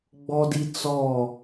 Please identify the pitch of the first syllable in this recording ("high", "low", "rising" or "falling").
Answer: high